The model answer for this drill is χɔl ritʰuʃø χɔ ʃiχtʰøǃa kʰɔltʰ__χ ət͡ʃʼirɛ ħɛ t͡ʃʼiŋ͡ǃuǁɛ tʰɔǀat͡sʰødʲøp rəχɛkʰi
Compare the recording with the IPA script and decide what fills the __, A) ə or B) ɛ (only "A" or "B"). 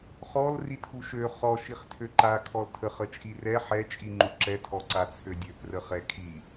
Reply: A